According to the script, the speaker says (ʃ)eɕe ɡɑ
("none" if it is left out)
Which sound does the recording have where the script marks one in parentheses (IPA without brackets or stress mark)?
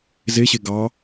z